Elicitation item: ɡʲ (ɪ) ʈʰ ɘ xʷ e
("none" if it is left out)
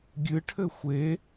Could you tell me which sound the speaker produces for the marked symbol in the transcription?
ɨ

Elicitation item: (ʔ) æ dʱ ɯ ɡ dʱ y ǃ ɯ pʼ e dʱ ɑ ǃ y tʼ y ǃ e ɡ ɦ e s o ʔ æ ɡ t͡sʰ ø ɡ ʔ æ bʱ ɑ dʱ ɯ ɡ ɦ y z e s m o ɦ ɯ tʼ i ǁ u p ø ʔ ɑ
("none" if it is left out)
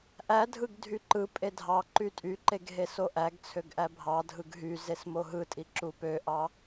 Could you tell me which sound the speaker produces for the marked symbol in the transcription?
ʔ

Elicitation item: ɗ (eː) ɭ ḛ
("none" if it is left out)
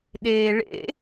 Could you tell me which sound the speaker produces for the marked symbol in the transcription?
eː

